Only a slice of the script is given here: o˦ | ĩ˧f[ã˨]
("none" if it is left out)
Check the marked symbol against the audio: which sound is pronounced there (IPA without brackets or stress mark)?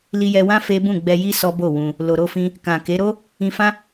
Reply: ã˦